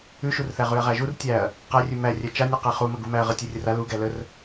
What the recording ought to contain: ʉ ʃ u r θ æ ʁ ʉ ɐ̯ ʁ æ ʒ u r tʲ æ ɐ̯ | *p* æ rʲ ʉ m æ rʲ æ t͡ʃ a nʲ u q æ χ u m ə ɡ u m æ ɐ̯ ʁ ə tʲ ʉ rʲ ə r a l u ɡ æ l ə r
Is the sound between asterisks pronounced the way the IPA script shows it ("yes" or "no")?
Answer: no